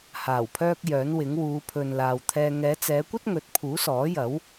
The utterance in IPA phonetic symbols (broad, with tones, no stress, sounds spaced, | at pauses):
h aː˨˩ w pʰ œː˥ k̚ j œː˨˥ n w ɪ˨˥ ŋ w uː˨˧ pʰ ɵ˨ n l aː˨ w t̪ʰ ɛː˧ ŋ ɛː˨˧ t͡s ɛː˨˧ kʷ ɐ˥ t̚ ŋ ɵ˨˥ t̚ pʰ uː˨˥ s ɔː˨˥ j ɐ˨˥ w